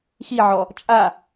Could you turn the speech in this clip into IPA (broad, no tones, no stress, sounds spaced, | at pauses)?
x i ʕ ɔ | t͡ʃʼ a